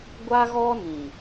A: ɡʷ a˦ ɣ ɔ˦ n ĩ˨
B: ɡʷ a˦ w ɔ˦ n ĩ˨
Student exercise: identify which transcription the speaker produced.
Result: A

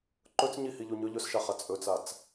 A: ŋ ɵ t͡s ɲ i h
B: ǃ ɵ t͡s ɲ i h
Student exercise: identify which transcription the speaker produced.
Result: B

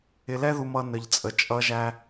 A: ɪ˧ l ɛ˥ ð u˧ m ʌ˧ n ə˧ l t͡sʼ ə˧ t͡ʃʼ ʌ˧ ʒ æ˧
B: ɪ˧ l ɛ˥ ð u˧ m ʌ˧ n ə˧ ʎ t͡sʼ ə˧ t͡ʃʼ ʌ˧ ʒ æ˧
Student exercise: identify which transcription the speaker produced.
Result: B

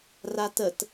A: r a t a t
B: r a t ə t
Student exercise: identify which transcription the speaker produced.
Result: B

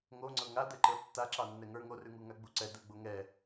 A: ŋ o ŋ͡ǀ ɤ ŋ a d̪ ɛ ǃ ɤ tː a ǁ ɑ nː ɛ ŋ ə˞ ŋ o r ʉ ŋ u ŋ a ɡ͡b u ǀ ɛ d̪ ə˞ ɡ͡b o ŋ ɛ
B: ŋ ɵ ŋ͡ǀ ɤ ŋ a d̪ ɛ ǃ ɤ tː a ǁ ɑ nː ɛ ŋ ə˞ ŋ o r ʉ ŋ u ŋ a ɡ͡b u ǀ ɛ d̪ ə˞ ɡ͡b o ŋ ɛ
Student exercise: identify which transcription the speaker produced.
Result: A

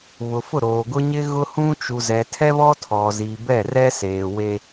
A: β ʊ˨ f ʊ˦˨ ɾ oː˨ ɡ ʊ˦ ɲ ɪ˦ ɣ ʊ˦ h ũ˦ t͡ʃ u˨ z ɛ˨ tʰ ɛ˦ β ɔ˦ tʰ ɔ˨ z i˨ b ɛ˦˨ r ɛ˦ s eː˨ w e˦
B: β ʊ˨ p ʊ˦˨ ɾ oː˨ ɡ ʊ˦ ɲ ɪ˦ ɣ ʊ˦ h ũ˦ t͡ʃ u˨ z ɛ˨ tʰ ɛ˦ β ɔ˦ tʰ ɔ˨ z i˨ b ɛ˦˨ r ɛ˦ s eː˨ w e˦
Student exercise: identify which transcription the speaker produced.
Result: A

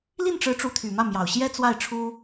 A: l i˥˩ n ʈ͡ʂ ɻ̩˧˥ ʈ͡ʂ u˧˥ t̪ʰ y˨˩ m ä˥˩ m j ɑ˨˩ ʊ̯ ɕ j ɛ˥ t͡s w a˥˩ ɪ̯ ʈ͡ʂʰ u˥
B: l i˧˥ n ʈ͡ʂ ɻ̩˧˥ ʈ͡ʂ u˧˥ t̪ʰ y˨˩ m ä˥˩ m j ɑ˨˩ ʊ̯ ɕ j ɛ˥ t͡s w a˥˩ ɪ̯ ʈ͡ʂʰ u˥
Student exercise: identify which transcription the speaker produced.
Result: A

